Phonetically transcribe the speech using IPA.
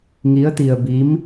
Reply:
ŋ i˧˥ ə̯ t̪ i˧ ə̯ b i˧˥ m

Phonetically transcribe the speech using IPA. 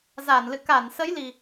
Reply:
z a˧˩ n l ɨ̰˧˨ k a˧˩ n s ə˨˦ j l i˨˩

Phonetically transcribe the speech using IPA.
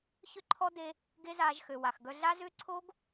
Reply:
ç ʏ˦ ǃʰ ɔ˦ d e˧ | ɡ e˦ z aː˧ ʒ x ø˨ w a˨ x ɡ œ˧ ɮ a˦ z ʏː˦ ǀʰ o˦ ɡ

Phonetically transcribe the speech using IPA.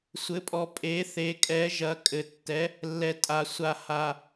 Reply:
sʷ ɘ˩˧ pʼ ɔ˩ pʼ e˩˧ θ e˩˧ kʼ ɛ˩˧ ʒ ɐ˩˧ kʼ ɘ˩ tː ɛ˩˧ | lː ɛ˩ tʼ a˩ sʷ a˩ h a˩

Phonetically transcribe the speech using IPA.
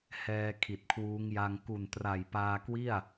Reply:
h ɛː˧ kʰ i˨˩ t̚ kʰ w uː˦˥ ŋ j a˧ ŋ k u˨˩ n t r a˨˩ j p aː˧ k w i˥˩ a̯

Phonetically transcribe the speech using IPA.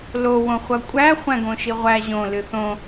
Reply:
l o w õ χʷ ʌ kʷʼ æ χʷ æ̃ ɡ õ ʃ i ʁʷ æ ʑ õ l ɨ θ õ

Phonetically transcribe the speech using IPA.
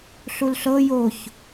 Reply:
ɬ u l ɬ ɤ j o ç

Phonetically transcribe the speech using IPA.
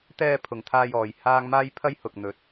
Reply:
t̪ ɛː˧ pʰ ʊ˨ ŋ t̪ʰ aː˧ j ɔː˨ j h aː˥ ŋ m aː˥ j pʰ ɐ˥ j h ʊ˨ k̚ n̪ ɵ˨˥ t̚

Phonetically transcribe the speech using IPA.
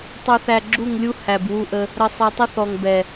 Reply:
tˤ u˧ θ æ˧ ɡ͡ǁ u˦˨ ŋ lʲ u˦ h æ˨ b w u˧ ʔ ə˧ | ɾ ə˧ sˤ ɛ˧ tˤ ə˦ θ ɔ˨ ŋ b ɛ˨

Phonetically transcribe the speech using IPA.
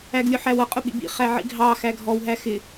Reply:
æ ɡ lʲ ʊ ħ æ w ʌ qʼ ʊ ɓ ḭ b ḭ χ æ ʕ ḭ ɡʱ ɑ x æ ɡʱ ɔ w ɦ æ x ɪ

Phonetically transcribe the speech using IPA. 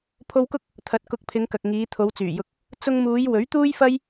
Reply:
pʰ o˧ w k ʊ˥ k̚ | t̪ʰ ɐ˨ t̚ k ʊ˨˥ k̚ pʰ ɪ˨˧ ŋ k ɐ˨ k̚ ŋ iː˨˧ t̪ʰ o˨˧ w t͡s yː˨˩ j ʊ˧ k̚ | t͡s ʊ˧ ŋ m uː˨˧ j w ɵ˨˥ ɥ t̪ uː˥ j f ɐ˥ j

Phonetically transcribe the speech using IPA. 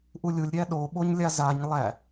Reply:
ʔ u lʲ u lʲ ɾʲ æ ɗ o ɓ o ɲ lʲ a z a ɲ lˠ æ

